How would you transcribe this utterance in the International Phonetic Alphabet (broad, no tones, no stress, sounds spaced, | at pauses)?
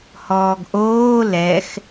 h ɔː ɡ ʔ oː l ɛ x